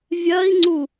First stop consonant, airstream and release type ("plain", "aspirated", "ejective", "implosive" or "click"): click